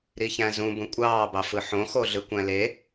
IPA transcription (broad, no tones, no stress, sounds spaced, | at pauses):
ɾ i ç æ̃ z ũ b ũ kʷʼ ɑː b ɑ f ɯ ħ õ x o ɮ ɯ kʷ æ̃ l e